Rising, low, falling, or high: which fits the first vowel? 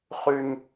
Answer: high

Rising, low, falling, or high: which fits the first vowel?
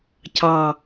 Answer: low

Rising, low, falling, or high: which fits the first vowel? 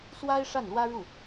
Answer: high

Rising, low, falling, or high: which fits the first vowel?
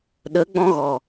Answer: rising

